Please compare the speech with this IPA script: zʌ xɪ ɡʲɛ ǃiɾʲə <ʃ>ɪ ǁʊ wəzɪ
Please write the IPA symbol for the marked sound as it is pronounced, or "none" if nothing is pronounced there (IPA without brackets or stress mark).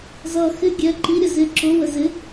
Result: z